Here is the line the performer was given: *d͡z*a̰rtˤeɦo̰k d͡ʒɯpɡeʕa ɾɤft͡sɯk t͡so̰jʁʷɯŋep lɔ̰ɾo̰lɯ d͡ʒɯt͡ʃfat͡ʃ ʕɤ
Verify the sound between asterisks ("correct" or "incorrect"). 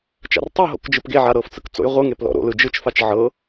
incorrect